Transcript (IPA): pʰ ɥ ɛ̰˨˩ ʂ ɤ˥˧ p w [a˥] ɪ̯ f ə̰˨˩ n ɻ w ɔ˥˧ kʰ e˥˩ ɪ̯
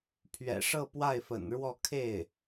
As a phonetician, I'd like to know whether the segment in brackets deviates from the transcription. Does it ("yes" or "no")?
yes